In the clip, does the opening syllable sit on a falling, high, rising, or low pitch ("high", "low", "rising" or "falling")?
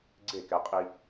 falling